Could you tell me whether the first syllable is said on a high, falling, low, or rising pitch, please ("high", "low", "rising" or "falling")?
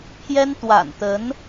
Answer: high